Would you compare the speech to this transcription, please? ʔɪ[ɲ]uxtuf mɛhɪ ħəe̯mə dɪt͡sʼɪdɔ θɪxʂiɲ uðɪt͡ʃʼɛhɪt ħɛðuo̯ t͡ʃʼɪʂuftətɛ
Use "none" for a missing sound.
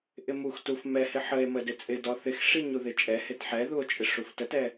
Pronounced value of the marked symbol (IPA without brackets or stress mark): m